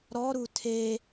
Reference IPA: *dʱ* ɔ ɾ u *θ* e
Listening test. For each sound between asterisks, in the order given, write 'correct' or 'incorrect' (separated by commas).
incorrect, incorrect